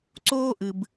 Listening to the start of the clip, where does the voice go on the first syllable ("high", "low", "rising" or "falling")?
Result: high